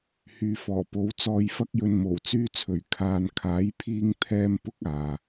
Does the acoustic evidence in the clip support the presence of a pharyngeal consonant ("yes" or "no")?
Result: no